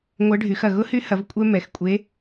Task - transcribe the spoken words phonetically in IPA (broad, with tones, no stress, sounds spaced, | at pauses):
ŋʷ ɐ˧˥ ɖʱ y˩˧ x ɐ˩ ɣ ʊ˧˥ h y˧˥ h ɐ˩˧ v kʷʼ ɛ˧ m ɛ˩˧ x kʷʼ e˩˧